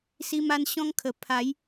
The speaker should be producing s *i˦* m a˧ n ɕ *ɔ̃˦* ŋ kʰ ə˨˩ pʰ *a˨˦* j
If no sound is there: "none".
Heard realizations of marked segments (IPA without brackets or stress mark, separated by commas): i˧, ɔ̃˦, a˨˦